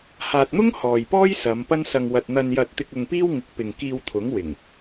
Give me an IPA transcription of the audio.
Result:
h aː˨ t̚ n̪ ʊ˥ ŋ h ɔː˨ j p ɔː˥ j s ɐ˨˧ m p ɐ˥ n s ɐ˧ ŋ w ɐ˧ t̚ n̪ ɐ˧ n j ɐ˧ t̚ t̪ ɪ˧ k̚ ʊ˧ ŋ p iː˥ w ŋ ɪ˨˥ k̚ p ɪ˨ ŋ k iː˧ w t̪ʰ ʊ˨˥ ŋ w ɪ˨˩ ŋ

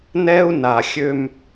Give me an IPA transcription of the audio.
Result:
n ɛ˦ u̯ n a˨ xʲ ø˦ m

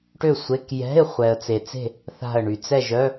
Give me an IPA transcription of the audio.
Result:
ʈ ø˥˨ sʷ e˧˥˧ k j ɛ̤˧˥˧ ɪ̯ χʷ ɛ˨ ə̯ t͡s e˨ t͡s e̤˥˨ | θ a̤˥˨ ə̯ ɳ y˨ t͡s ɛ˥˨ ʒ œ˧˥˧

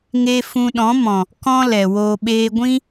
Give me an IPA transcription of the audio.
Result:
ŋ e˦ f ũ˧ ɗ ɔ̃˨˦ m ɔ̃˨ | k ɔ̃˦ l ɛ˨ w oː˦ ɓ eː˦ ɡʷ ĩ˦

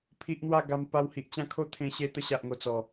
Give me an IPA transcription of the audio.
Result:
pʰ i˦ ʔ n̪ w a˥˧ ɡ a˧ m p a˧ w h i˨ ʔ t͡ɕ ã˥˧ kʰ o˦ t̪ʰ ẽ˧ ɕ e˧ t̪ ə˧ ɕ a˨ ʔ ŋ o˨˩ t͡s ɔ˨˩

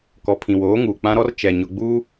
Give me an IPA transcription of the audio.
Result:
k ɔ˨ pʰ ĩ˨ w oː˨˦ ŋ uː˨ k͡p ã˦ ɾ ɔ˦ r t͡ʃ ɛ˨ ɲ ʊ˨ ɡ͡b uː˦

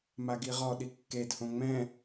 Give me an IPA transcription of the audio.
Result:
m a ɡ i ʁ ɔ ɗ i kː e d h õ ŋ͡m ɛ̃

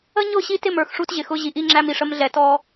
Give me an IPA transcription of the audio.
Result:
ə˦ ɲ ʊ˦˨ ɕ i˦ t ɪ˦˨ m ə˞˨ x ʂ u˦ t ʑ ɪ˨ x ʊ˦ ʑ i˨˦ ʔ i˦ ŋ͡ǁ æ˦ m i˨ ʂ ə˦ m ɮ ɛ˨ t ɔ˦

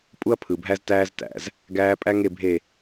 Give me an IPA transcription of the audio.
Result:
pʼ u˦ ɐ̯ pʰ ɯ˨ bʱ æ˦ z t æː˦ z t æ̰˨ z | ɡ æː˦ pʼ æ˦ ŋ e˦˨ bʱ e˦˨

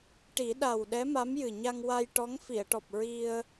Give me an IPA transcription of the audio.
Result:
ʈ i˨˩˦ ɗ a˨˩ w ɗ ɛ˧˥ m a˧˥ m j ɨ˨˩ ɲ a˧ ŋ w a˧ j ʈ ɔ˧˥ ŋ f i˨˩˨ ə̯ ʈ ɔ˨˩ p̚ ɹ i˧ ə̯

